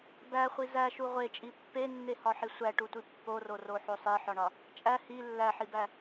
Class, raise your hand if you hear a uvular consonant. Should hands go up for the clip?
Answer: yes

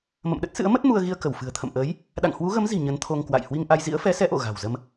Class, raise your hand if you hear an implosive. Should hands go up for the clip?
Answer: yes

